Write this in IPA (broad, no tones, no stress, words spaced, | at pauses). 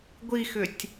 ɡʷixʏtʲ